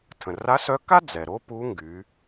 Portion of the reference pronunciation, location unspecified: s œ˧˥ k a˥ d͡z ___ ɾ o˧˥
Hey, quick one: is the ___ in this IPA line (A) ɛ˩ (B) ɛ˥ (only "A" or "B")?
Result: A